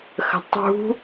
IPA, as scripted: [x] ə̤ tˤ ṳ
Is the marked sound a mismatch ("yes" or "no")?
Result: no